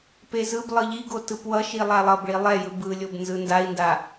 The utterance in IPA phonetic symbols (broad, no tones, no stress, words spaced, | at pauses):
pezɯblˠɯ ʎiɡo tɯpwʌʃi lˠalˠʌbɭi lˠɛjɯ bɯlʲob nzɯndai̯nda